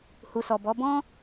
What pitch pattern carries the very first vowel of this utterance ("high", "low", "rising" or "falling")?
low